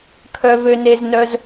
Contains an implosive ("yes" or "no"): no